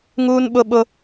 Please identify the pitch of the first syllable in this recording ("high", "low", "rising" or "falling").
high